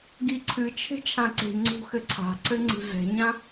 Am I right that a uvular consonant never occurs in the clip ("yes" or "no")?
yes